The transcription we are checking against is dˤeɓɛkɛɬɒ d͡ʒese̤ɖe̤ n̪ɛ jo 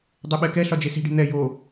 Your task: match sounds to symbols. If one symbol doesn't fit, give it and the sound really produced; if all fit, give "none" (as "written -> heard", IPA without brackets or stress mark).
none